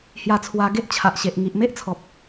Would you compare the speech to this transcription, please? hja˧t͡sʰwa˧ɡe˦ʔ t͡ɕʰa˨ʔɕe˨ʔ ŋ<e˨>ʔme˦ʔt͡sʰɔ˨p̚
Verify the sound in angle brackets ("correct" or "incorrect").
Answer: incorrect